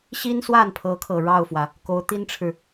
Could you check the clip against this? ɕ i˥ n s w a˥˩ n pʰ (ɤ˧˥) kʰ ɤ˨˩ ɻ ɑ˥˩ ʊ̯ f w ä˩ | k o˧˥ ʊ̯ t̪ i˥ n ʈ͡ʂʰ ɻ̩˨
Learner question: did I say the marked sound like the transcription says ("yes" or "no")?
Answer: yes